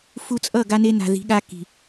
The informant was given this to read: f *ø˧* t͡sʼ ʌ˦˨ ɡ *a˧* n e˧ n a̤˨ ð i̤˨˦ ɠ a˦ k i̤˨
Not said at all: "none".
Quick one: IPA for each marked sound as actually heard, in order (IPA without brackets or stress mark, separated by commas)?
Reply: u˧, a˧